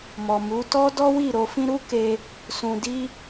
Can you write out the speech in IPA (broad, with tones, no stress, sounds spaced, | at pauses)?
m ɔ˨ m u˨˦ t ɔ˦ d ɔ˦ w i˦˨ ɾ o˧ f ĩ˦ ɾ u˦ k e˧ | s ũ˧ d i˦